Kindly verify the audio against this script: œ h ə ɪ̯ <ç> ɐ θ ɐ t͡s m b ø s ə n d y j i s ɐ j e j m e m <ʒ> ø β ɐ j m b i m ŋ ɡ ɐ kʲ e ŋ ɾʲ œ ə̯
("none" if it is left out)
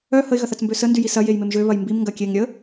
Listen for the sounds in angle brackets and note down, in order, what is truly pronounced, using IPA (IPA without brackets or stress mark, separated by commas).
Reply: ɣ, ʒ